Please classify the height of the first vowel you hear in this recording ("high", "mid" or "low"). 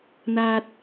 low